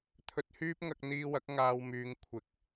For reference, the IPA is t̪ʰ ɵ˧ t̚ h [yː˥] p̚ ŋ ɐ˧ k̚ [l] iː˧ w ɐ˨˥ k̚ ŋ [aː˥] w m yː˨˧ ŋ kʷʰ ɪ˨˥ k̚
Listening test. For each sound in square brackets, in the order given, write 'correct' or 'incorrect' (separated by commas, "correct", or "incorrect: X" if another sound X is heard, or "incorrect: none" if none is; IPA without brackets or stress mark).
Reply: correct, incorrect: n̪, incorrect: aː˧